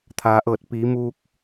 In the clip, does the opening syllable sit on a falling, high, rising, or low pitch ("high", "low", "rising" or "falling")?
low